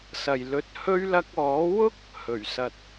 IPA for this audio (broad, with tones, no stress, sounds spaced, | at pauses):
s ɐ˨ j l ɵ˧ t̚ h ɵ˥ ɥ l ɐ˧ k̚ ɔː˨˥ w ʊ˥ k̚ | h ɵ˨˩ ɥ s ɐ˨ t̚